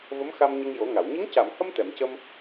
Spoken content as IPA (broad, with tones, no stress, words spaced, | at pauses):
və˧˥mxa˧m ɲə˧ŋjo˨˩˦ŋa˨˩˨w ɲə˧˥ŋca˨˩˨mhə˧m t̪ɛ˨˩˨mcə˧m